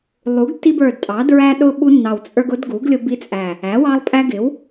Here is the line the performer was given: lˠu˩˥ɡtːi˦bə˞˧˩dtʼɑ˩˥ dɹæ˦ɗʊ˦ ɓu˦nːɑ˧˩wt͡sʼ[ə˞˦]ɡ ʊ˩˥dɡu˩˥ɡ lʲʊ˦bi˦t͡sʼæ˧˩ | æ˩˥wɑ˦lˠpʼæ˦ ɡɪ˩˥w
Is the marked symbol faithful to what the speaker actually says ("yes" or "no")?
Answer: yes